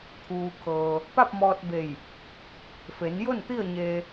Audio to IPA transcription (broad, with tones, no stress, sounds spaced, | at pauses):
t̪ʰ uː˩ kʰ ɤː˩ | p a˥˨ p̚ m ɔː˧ t̚ b e˧˩ j | f e˩˧ n j o˥˨ n t̪ i˥˨ ə̯ ɲ eː˧